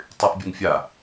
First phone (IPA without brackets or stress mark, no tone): tˤ